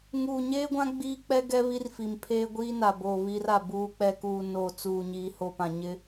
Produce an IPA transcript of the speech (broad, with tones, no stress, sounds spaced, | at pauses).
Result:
ŋ uː˨ ɲ eː˦ ɡʷ ã˦ ɡ͡b iː˦ k͡p ɛ˦ ɡ ɛ˦ β i˦ r f i˨ m pʰ eː˦ ɡʷ iː˦ n a˨ b oː˨ β i˦ r a˨ b uː˨ k͡p ɛ˨ k uː˨ n oː˨ t͡s uː˨ ɲ iː˨ h o˨ p ã˨ ɲ ɪ˦